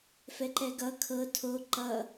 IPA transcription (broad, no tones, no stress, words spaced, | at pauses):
fɛǃɛɡʌ kʰɤ tʰo ǃʌ